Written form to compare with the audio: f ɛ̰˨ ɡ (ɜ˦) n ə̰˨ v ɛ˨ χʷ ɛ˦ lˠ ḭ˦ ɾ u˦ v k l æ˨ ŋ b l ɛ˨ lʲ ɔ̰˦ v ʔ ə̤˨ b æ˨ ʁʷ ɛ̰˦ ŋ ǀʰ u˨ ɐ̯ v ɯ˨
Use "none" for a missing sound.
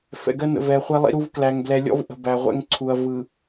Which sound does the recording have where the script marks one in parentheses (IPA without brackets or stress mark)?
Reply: ɜ˦